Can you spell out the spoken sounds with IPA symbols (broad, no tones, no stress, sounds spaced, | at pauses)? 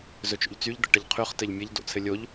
z ɵ t͡ʃ o̰ ʎ t͡s y ʎ d̪ ə̰ ʈ ə ʎ qʰ y χ t ɘ ʎ mʲ ɘ ʎ d o̰ t͡sʰ ɘ lʲ o ʎ